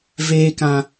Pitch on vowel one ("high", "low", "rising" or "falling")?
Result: high